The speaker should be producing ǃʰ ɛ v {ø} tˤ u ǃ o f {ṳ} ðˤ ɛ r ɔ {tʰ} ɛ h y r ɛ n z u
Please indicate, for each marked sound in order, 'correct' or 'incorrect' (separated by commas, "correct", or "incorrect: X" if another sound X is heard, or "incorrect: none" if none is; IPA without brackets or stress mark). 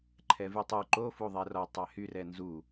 incorrect: y, incorrect: u, incorrect: tˤ